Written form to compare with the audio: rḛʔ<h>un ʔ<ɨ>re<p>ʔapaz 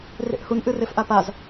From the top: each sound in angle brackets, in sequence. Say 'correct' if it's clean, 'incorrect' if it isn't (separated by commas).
correct, correct, incorrect